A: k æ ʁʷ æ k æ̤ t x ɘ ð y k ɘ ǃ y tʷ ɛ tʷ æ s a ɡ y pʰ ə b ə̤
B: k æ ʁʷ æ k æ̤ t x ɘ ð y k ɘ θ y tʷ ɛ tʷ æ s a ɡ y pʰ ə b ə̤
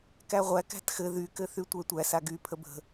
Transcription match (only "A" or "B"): B